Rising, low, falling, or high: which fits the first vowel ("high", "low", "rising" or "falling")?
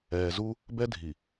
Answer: low